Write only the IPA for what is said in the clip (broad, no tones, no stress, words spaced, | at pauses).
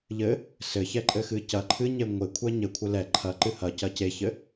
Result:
ʎɘ | sɘçɛǃʼɘxɨ cɐ ǃʰɨɲe ŋʷekʷʰɛ ɲɘkʷʰɘ lɛ ǃʰɐǃɨ hɐcɐ ceçɘ